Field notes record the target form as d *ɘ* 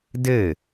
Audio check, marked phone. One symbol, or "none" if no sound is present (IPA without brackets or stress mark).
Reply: ɘ